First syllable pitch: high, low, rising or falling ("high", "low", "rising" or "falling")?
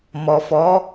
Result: low